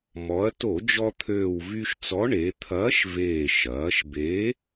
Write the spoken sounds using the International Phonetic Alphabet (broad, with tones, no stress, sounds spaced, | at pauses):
m ɔ˩˧ ɐ̯ t o˧˩˧ d͡ʒ ɔ˧ t̪ʰ øː˨˩ w v y˧ ʃ t͡s ɔ˨˥ ɳ e˩˧ t̪ʰ ɐː˨˥ ʃ v eː˨˩ ʃ ɐː˩˧ ʃ b e˨˥